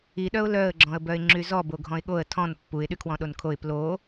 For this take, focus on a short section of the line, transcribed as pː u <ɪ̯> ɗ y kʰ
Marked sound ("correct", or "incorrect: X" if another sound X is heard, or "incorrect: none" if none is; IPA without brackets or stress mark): correct